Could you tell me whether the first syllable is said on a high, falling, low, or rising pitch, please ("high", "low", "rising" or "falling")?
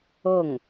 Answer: falling